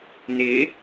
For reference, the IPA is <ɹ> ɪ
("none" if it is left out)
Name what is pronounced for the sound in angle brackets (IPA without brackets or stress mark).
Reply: n